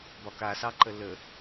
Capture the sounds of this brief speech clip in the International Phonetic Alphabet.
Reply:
b ɒ k a s ɑ ǃ ə l ə

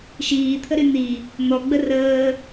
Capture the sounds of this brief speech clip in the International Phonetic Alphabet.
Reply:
ʃ iː t̪ʰ ə ɾ y n̪ i | n̪ ɔ ɡ͡b ə r əː

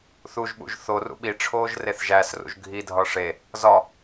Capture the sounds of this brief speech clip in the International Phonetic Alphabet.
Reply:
θ u ʒ ɓ ṵ ʒ θ o r ṵ ɓ i ʈ͡ʂʰ oː ʒ r e θ ʒ æ s r ṵ ʒ ɡʱ i dʱ ɒ ʂ e | z ɒ

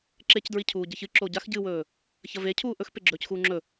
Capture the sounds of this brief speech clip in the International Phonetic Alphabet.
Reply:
ǁ e c d ɹ i cʰ uː ɟ ɐ ç ɨ ǁ o ɟ a x ɟ ɨ w ɵː | ç ɐ v e cʰ uː ʔ ɵ x p e ɡ͡ǁ ɵː c x uː ŋ͡ǁ ɵ

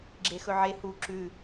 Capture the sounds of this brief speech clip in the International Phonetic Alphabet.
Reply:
ɡ͡ǁ e x ɵ ʕ e h u ǁ ʉ

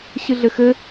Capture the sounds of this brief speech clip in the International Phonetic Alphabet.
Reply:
ɕ ɨ ɮ ɘ x ɘ

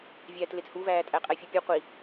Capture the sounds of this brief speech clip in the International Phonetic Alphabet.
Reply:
vʲ æː t l e t h u v æː tʼ æ qʼ æ fʲ u pʲ u qʷ i

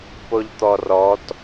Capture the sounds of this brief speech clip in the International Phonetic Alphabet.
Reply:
p o ʎ t̪ ɔ r ɔ t

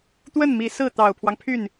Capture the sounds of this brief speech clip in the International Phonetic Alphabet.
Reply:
t̪ w ə˥˩ n m i˧˥ s ɹ̩˥˩ t̪ ɑ˨˩ ʊ̯ pʰ w ɑ˦ ŋ pʰ y˥˩ n

